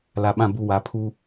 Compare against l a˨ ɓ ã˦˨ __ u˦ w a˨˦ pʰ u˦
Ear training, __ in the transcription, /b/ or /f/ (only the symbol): b